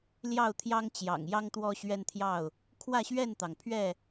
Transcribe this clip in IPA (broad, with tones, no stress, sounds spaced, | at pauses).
l j ɑ˥˨ ʊ̯ t̪ʰ j ɑ˦ ŋ t͡ɕ j ɑ̰˨˩ ŋ j ɑ˦ ŋ t̪ w ɔ˦ ɕ ɥ ɛ˦ n t̪ʰ j ɑ˥˨ ʊ̯ | kʰ w ä˥˨ ɕ ɥ ɛ˥˨ n t̪ ɑ˩ ŋ pʰ ɥ ɛ˥˨